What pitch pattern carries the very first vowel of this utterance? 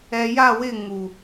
low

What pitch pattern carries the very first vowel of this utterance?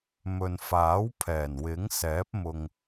low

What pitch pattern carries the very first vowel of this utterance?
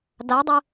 rising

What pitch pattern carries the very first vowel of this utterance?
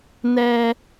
high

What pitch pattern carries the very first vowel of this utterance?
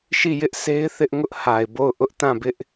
falling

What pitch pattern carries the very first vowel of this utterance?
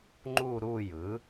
falling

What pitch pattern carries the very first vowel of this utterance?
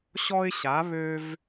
high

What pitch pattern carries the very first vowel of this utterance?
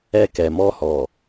high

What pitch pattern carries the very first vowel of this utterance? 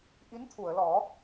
rising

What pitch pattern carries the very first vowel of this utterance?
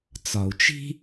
low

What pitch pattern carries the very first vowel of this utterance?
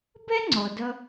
high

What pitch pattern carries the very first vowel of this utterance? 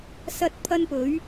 high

